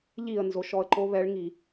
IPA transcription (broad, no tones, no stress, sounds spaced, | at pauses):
ʎ i ə̯ n z o ʃ ɔ ə̯ ǃ o β ɛ ɭ ŋ i